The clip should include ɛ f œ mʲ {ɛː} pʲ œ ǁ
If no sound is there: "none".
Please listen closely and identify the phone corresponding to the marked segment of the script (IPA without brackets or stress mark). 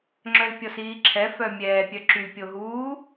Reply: ɛː